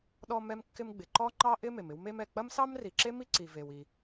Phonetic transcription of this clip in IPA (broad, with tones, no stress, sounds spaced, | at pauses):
ɗ ɔ˥ m ɛ˥ m kː ɪ˥ m ɡ͡b ɪ˩ ǃ ɔ˥ ŋ͡ǃ ɑ˥ ʔ ɪ˥ m e˩ m ɪ˥ w m e˥ m ɛ˩ k͡p ɐ˥ m s ɑ˥ m r i˩ ǁ e˥ m i˥ ǀ i˩ v e˩ w i˩